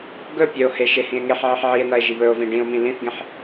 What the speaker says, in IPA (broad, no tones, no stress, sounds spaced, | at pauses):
ɡ ɵ pʲ ɵ o̯ h e ʃ e h ĩ e̯ ŋ e ħ ʕ i ħ ʕ i e̯ n ɐ e̯ ʒ i β ɵ o̯ v ĩ ɖ ĩ o̯ m ĩ l ĩ θ ɡ ẽ ħ